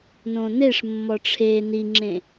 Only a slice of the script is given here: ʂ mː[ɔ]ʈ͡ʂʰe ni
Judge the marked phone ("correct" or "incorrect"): correct